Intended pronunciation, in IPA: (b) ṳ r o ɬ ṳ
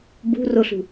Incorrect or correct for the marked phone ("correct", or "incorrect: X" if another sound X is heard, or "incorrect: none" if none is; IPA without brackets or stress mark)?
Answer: correct